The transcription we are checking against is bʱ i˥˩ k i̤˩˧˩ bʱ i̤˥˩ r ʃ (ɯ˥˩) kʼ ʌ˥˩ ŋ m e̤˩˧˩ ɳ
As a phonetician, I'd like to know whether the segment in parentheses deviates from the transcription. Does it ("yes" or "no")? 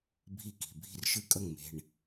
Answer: no